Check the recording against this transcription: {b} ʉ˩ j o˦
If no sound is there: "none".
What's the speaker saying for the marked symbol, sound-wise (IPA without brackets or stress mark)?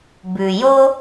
b